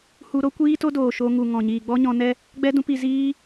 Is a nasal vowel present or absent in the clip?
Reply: present